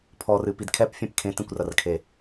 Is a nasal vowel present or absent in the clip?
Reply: present